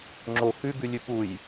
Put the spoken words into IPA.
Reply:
ŋ͡ǁo xʉ ɡʉlʲʉpuj

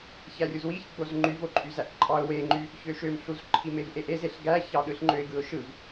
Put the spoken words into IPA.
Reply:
çærʲuzwiç ɡ͡bozŋ͡ǃyv oǃʼyzæʔǃʼɑʊ̯ weŋ͡ǃy | çøʃømɬuz ǃʰimevʔeʔez eɬɡæçɑ ɗɯɬŋ͡ǃøɪ̯ɡɯʊ̯ʃɯv

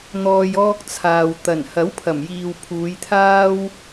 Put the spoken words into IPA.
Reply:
n̪ɔː˨j ɔː˧k̚t͡sʰaː˨w t̪ɐ˨˩nhɐ˨˥wpʰɐ˨˩mjiː˨w pʰuː˨˧jt̪ʰaː˥w

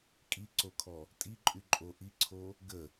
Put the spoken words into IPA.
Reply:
kʼiǀokʰɔ | tʼiǃʼyǃʼo ʔiǀʰo | ɡə

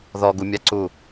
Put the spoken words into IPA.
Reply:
ðɔɡumʲaǀu

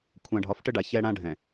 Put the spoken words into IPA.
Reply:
kʷʰã˨ɖʱɒ˨˦fʈə˦ɖa˨ çɛ˦ɽã˦ɖʱɛ̃˨

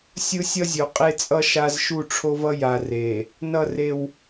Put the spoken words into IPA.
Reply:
sʲɯ˦sʲʌ˦zʲo˨ qʼe˦t͡sʼʌ˦ ʃa˦z ʃu˦˨ʈ͡ʂʰo˦vʌ˦ ja˨re˨ | nʌ˦˨re˦w

